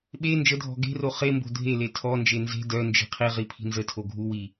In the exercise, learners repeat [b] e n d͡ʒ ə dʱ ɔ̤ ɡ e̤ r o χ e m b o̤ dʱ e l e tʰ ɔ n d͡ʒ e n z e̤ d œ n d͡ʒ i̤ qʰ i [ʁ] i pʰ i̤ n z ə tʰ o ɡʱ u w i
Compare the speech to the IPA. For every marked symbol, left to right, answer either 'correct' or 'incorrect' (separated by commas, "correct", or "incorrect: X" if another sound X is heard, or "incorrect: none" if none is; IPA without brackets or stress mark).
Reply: incorrect: ɓ, correct